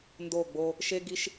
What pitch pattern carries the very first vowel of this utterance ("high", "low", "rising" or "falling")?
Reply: falling